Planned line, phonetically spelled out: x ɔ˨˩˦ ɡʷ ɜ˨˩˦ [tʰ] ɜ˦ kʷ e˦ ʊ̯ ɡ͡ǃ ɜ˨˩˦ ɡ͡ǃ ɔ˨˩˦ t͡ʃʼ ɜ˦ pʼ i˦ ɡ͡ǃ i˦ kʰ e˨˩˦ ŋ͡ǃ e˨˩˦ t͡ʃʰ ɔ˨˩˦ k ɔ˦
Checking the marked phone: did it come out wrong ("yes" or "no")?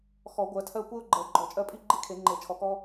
no